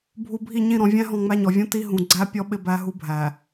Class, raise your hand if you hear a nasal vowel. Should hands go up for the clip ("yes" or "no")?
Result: yes